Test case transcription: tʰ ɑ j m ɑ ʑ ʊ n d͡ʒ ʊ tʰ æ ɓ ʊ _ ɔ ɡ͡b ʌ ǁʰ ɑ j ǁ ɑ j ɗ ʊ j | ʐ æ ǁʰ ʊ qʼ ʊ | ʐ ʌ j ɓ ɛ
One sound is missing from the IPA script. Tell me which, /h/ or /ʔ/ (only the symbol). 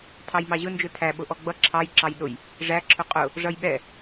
ʔ